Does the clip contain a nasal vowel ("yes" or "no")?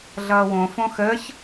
yes